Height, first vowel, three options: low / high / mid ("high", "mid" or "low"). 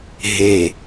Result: mid